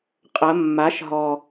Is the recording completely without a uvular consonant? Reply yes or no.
no